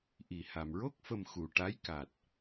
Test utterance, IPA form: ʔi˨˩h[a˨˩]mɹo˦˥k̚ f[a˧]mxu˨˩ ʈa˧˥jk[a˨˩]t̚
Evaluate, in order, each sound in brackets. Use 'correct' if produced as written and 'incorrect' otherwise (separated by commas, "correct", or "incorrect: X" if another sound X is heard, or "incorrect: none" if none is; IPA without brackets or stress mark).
correct, incorrect: ə˧, correct